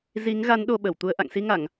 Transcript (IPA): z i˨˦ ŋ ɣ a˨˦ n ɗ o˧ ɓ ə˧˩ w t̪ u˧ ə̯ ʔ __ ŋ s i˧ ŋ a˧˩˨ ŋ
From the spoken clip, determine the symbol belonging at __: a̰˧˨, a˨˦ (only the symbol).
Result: a̰˧˨